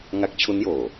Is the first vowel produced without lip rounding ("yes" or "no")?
yes